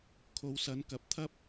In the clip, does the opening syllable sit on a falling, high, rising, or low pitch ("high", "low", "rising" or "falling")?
low